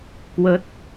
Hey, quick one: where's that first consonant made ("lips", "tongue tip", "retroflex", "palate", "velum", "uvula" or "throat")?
velum